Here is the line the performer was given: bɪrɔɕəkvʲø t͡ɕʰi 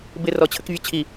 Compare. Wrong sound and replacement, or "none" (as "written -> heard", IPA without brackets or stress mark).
ɕ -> t͡ɕʰ